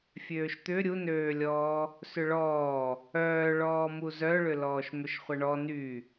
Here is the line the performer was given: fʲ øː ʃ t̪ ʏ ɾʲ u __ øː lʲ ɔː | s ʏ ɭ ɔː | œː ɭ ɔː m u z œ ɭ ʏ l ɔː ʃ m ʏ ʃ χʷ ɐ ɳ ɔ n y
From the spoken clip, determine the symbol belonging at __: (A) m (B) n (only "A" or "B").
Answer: B